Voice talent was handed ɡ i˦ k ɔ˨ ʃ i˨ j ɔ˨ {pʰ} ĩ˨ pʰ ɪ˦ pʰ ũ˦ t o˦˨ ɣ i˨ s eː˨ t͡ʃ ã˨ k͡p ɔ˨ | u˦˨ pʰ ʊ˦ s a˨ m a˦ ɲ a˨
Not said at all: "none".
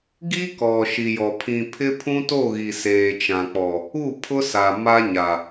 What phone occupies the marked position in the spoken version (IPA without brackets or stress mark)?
pʰ